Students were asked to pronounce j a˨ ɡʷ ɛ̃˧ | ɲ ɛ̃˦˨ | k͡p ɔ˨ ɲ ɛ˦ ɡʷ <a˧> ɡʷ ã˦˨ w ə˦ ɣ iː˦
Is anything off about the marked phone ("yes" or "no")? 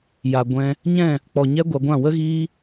no